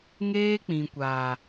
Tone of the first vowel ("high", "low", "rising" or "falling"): high